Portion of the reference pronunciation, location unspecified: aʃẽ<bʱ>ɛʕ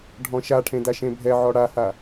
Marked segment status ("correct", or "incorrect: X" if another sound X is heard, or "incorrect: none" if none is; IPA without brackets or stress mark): correct